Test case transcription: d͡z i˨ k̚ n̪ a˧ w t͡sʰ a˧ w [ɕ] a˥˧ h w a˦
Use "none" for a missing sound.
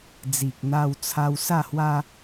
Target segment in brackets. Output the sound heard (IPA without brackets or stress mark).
s